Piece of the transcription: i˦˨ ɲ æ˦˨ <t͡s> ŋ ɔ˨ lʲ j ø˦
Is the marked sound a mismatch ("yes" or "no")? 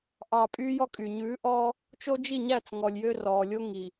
no